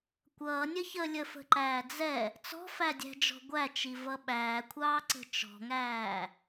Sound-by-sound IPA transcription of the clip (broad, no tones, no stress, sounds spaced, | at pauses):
kʷ ʌː nʲ ə ç ə lʲ ə f ə̤ ǃ æː d͡z ɛ | t͡s ɔ̤ f æ dʲ æ̤ d͡ʒ ɔ̤ ɡʷ æ t͡ʃ i v ʌ ɓ æː kʷʰ ɑː ǀ ə̤ t͡ʃ ɔ̤ ŋ æː